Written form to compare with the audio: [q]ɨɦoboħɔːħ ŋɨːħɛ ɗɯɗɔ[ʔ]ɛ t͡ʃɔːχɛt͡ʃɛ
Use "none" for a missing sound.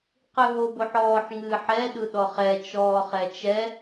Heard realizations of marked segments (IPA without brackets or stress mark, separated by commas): q, χ